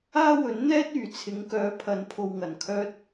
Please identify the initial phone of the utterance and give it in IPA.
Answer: aː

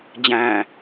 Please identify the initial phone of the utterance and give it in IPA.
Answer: d͡ʑ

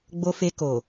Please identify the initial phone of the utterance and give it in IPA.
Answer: ɡ͡b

